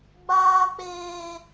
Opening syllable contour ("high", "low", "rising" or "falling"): low